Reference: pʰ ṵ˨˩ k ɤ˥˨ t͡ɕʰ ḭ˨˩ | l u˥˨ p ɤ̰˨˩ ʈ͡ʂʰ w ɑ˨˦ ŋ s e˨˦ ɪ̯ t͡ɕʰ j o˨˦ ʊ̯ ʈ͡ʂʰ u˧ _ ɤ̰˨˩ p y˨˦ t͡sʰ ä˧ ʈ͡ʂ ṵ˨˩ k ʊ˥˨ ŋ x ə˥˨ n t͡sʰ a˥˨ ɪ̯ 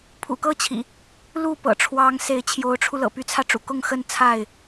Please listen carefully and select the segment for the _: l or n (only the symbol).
l